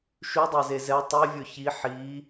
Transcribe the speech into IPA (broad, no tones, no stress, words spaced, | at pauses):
ʃydˤæze zɛ tˤivʲɵ çi ħi